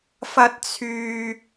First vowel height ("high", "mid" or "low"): low